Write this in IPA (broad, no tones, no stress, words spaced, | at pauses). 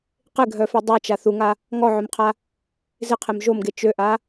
qɪɡʱœfe dˤat͡ʃa θuŋa | ŋɔʕœmqʰa | zɪqʰem ʒomɡe t͡ʃøʔa